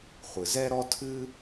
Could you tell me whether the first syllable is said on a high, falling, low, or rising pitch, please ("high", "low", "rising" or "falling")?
low